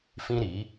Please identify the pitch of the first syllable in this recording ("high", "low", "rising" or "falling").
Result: high